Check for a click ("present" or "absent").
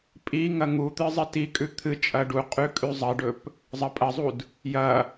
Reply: absent